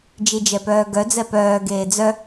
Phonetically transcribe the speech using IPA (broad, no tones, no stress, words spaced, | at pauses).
d͡ʒid͡ʒɛpœːɡœ d͡zɛpœː ɡeːd͡zœ